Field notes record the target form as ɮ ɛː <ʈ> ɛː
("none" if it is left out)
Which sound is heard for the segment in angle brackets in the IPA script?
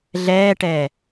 ʈ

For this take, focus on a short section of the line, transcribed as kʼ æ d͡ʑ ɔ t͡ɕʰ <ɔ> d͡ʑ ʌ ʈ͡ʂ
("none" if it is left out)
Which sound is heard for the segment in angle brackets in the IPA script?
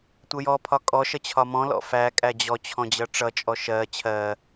ɔ̃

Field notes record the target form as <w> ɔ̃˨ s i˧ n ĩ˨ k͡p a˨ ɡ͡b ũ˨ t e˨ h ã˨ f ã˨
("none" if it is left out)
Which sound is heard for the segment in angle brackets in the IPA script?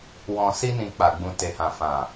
w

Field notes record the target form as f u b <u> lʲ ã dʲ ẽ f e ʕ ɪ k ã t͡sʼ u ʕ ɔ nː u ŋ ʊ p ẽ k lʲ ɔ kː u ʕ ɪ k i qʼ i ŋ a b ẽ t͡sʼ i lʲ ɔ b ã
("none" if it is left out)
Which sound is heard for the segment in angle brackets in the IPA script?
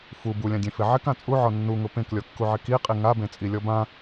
u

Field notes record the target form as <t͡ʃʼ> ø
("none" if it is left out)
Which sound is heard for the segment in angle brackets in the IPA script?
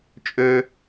t͡ʃʼ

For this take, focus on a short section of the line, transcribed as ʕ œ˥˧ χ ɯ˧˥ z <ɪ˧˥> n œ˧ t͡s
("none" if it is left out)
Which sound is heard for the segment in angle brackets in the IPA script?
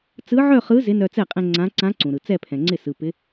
ɪ˧˥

